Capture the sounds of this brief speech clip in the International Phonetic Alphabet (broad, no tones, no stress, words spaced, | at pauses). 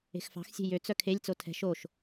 e̤xfɑ̤xsʲe̤ jøt͡s œkʰelʲt͡so tʰɛ̤ʃ oʃ